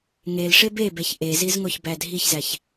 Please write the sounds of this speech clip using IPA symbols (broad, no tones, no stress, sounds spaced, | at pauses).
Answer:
ŋ e l ʂ e b e b e ç ʔ e z i z ŋ o ç b æ dʱ i ç z æ ç